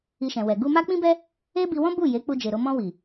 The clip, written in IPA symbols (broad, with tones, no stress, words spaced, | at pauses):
i˧ʃɛ̃˨wɛ˨ ɡu˧ma˦k͡pĩ˦bɛ˦ | e˦bi˧wɔ̃˦ bu˦˨ je˨˦k͡pu˧d͡ʒe˨ɾo˧ mɔ̃˧ wi˨